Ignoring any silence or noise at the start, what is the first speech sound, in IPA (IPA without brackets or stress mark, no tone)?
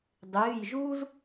dˤ